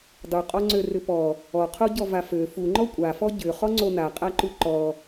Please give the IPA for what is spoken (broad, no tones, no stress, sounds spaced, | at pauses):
dˤ u qʼ ɔ ŋ͡ǀ ø r ʏ p ɔ | ɔ qʰ o ɟ ɔ v a f ø f u ŋ͡ǃ ɔ kʷʼ a f ɔ ɟ ʏ χ ɔ ŋ͡ǀ o n a qʼ a ǃ u ǃ ɔ